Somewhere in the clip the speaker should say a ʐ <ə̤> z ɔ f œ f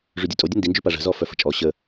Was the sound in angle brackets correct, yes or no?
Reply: yes